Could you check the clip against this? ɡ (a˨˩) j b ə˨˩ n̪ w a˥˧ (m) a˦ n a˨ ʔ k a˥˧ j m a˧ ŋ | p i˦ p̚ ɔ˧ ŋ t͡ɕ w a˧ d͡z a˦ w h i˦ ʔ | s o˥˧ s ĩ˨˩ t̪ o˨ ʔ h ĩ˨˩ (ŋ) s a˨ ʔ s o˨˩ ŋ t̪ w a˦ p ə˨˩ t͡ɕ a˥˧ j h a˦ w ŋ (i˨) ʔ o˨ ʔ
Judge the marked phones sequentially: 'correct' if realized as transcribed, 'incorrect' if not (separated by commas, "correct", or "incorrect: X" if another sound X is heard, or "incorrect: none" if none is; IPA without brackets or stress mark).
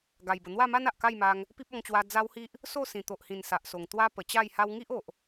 correct, correct, incorrect: n, incorrect: i˦